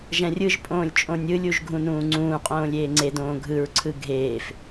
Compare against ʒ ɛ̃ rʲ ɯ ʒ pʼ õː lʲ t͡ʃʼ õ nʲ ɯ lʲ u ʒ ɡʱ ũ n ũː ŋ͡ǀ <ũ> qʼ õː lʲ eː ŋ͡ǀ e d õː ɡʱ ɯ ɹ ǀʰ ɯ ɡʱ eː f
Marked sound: incorrect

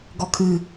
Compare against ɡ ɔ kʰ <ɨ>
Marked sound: correct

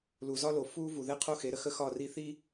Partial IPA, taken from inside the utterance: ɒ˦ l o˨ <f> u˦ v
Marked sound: correct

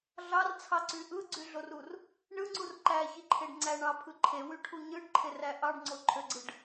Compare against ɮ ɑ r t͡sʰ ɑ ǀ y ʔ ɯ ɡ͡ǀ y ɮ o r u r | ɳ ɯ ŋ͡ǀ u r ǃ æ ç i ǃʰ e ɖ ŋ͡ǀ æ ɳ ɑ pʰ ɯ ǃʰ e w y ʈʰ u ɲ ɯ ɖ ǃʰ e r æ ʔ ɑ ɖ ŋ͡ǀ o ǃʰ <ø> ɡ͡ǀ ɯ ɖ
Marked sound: correct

